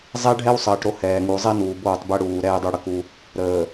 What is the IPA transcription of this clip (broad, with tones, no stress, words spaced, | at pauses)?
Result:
zˤɛ˦ ɖʱɛ˦wsˤəː˨ʈɾo˦˨ hɛː˨ŋu˨zˤɛ˦nuː˨ boː˦˨tˤbɛ˦ɽuː˨ ɾɛː˦dˤu˦ɽə˨ku˦ | ɾəː˨